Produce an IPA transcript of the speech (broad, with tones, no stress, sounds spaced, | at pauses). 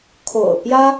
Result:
kʰ o̰˨˩ ʊ̯ p j ä˥